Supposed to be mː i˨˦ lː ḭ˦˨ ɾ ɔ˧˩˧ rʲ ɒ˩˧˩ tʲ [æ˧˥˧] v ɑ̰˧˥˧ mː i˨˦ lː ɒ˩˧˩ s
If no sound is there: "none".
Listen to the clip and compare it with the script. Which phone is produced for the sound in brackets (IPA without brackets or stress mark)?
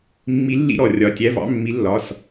æ˧˥˧